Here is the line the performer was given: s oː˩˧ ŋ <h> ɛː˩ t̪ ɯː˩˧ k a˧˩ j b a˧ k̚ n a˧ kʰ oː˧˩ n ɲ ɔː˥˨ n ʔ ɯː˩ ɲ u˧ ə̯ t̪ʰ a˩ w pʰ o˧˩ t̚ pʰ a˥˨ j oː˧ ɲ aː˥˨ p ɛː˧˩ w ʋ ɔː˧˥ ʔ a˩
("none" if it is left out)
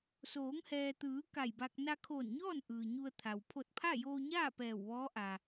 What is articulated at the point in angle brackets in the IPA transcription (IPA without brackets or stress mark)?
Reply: h